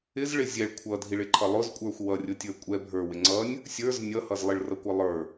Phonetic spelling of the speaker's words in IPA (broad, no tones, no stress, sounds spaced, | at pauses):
ɪ z ɭ ɪ zʲ ɛ ɭ kʷʰ ʌ dʱ i ɭ ɪ ǃʰ ʌ lˠ ʊ z kʷʼ ə˞ xʷ w ʌ rʲ ʊ tʲ ə˞ kʷʼ ɛ bʱ ə˞ w ɪ ŋ͡ǀ ʌ nʲ | sʲ ə˞ z nʲ ʌ h ʌ z lˠ ɪ ɭ r ʌ kʷ ʌ lˠ ə˞